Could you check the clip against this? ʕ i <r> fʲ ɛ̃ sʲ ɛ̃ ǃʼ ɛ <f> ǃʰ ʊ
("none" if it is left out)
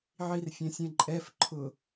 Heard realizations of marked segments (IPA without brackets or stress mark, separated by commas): r, f